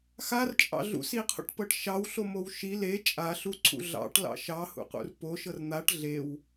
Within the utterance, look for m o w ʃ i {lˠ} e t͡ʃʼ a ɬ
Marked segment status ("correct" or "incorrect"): incorrect